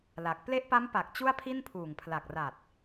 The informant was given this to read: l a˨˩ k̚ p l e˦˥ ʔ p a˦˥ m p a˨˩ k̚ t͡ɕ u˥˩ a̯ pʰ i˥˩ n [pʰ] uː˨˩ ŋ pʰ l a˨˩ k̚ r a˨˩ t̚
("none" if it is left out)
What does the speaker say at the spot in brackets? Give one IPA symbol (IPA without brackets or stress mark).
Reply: pʰ